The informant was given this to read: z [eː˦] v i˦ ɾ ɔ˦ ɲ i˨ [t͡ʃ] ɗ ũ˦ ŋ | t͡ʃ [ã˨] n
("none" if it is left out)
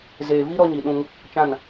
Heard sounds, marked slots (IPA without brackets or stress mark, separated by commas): eː˨, none, ã˦˨